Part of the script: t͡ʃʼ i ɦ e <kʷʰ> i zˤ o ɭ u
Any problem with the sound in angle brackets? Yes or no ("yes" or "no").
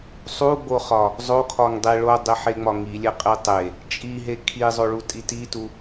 yes